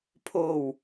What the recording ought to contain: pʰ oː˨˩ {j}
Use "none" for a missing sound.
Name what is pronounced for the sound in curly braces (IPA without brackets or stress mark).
w